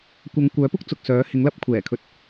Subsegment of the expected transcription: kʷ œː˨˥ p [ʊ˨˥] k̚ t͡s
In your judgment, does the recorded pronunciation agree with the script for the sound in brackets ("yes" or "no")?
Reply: no